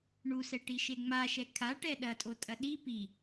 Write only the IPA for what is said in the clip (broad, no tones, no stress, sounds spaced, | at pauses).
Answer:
ɳ u s ɛ ʈ i ʃ e ŋ͡m a ʃ ɛ kʰ a ʈ ɛ ɗ ɐ tʼ o tʼ ɐ ɗ i p i